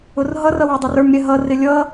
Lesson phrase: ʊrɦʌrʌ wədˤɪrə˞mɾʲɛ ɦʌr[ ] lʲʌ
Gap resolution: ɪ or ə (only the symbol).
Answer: ɪ